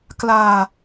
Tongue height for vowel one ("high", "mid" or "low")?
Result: low